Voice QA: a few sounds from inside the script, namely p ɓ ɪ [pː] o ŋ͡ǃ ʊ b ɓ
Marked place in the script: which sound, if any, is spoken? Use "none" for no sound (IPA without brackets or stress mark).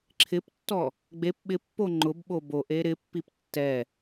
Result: pː